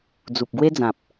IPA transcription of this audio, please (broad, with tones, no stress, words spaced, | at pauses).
d͡zu˨p̚ɡwe˦d͡zã˨p̚